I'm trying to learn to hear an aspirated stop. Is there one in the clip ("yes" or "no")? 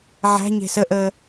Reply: no